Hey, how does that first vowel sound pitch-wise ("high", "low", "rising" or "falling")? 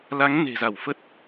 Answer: rising